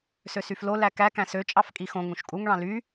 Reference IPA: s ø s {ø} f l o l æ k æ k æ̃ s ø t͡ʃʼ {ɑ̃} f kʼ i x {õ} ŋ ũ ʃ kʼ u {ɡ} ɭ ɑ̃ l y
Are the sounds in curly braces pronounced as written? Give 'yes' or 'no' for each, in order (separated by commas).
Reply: no, no, yes, no